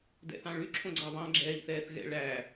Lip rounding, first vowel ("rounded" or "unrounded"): unrounded